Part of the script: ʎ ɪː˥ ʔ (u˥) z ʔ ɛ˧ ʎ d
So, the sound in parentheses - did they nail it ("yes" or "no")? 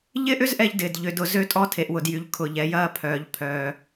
no